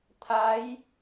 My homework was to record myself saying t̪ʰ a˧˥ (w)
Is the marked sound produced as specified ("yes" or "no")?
no